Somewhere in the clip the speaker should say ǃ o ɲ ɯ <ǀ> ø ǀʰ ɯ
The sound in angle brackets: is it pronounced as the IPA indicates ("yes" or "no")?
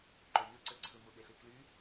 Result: yes